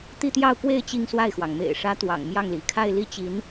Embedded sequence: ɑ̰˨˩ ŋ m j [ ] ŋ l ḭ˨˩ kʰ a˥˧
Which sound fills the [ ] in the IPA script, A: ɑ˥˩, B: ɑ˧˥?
A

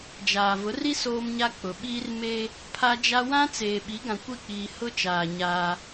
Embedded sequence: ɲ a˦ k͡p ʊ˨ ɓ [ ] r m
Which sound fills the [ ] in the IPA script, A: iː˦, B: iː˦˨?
A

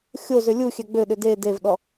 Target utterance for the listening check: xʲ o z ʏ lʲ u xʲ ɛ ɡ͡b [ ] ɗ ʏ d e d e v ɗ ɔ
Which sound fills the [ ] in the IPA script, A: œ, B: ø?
B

